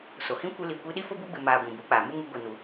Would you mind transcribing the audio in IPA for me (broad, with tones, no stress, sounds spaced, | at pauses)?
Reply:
s o˨ h ĩ˦ kʷ ɨ˧ l i˨ kʷ i˧ ɗ i˦ f o˦ b u˦ ɡ͡b ɨ˨ m aː˨ ɡʷ ĩ˨ b u˨˦ k͡p aː˨ m u˦ ŋ u˧ ɡʷ i˨ n u˨